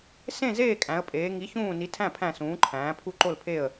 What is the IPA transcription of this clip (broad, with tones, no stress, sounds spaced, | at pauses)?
s ẽ˥˧ z eː˥˧ kʼ æ̃˧˥ ə̯ pʼ eː˧˥ ŋ i˧˥ ç ũː˥˧ n i˧˥ tʰ æ̃˥˧ pʰ æ̃˥˧ s ũː˧˥ ǃʰ æ̃ː˧˥ pʰ u˥˧ ǃ o˥˧ l pʰ e˥˧ ə̯